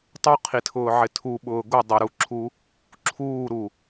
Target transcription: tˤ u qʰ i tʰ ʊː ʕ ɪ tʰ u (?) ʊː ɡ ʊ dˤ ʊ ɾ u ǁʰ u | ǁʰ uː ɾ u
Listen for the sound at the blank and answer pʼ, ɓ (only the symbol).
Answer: ɓ